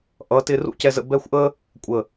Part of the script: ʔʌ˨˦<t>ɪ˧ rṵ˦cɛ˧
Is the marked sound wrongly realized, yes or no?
no